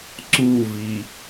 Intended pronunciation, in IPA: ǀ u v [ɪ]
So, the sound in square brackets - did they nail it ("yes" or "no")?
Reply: no